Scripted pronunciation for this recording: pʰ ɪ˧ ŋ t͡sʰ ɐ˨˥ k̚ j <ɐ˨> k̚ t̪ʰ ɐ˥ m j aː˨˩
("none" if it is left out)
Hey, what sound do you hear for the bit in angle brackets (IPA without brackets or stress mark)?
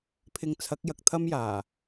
ɐ˨